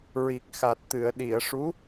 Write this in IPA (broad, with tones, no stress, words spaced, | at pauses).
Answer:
ɹi˨˩k̚xa˨˩t̚t̪ɨ˨˩˨ə̯ ɗi˨˩˨ə̯ʂu˧˥